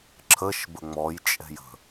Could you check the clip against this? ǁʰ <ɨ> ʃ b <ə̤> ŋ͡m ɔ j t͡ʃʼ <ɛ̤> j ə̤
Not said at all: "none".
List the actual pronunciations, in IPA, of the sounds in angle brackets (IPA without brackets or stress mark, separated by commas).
ə, ə, ɛ̤